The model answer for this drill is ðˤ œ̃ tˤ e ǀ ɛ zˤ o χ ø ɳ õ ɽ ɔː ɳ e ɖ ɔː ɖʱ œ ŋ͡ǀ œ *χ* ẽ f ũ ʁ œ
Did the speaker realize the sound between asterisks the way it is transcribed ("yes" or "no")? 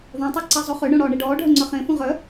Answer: yes